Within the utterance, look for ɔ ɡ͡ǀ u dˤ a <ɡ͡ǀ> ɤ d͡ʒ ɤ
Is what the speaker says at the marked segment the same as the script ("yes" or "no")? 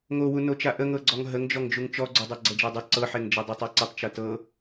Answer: yes